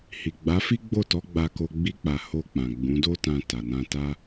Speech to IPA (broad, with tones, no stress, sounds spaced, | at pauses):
h i˨ ɡ͡b a˨˦ f i˦ ɡ͡b o˦˨ t ɔ˨˦ ɡ͡b a˧ k o˧ ɡ͡b i˦ k͡p a˧ h o˧ k͡p ã˨ ɡ͡b ũ˨˦ d o˦ t ã˧ t a˨ n ã˧ t a˦